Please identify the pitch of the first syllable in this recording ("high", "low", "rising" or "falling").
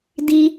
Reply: high